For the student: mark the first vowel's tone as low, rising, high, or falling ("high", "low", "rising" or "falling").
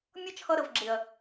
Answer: high